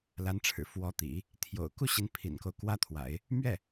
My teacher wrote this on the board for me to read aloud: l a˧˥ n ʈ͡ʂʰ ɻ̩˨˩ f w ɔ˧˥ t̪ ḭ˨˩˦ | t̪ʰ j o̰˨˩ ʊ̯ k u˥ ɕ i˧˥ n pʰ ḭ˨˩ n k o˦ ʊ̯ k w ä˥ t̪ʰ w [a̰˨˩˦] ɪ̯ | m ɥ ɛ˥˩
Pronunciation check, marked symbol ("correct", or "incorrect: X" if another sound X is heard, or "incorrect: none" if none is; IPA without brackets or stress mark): correct